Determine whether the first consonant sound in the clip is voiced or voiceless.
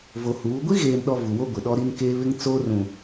voiced